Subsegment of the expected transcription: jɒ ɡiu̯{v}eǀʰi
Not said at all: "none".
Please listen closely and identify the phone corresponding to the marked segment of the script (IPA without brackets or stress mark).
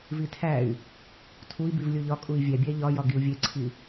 vʲ